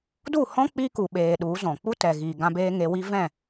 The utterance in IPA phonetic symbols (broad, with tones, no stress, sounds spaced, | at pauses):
d u˦˨ h ɔ̃˦ k͡p i˦ k u˧ ɓ eː˧ ɗ u˨˦ z ɔ̃˨ k͡p u˦ t ɛ˨ ɣ iː˨ ɡ ã˧ b eː˧ ŋ e˧ w i˦ v ɛ̃˦˨